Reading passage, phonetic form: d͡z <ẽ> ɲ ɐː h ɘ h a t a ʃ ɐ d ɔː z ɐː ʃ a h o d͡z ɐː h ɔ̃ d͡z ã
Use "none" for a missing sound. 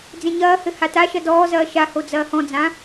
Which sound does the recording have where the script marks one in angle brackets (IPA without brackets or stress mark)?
ẽ